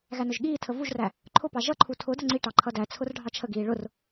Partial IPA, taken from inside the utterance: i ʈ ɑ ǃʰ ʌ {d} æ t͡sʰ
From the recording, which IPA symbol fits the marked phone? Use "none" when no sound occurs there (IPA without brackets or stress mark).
d